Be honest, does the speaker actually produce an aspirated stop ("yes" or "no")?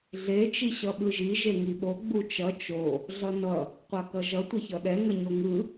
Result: no